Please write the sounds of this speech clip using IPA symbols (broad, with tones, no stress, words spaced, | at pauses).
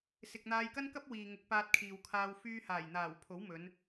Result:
sɪ˨k̚n̪aː˧jkɐ˥nkɐ˥p̚ wiː˨ ŋʊ˨˥k̚paː˧t̚kʰiː˨wkʰaː˧w fyː˧haː˨˩jn̪aː˨˩w pʰo˨˥wmɵ˨˧n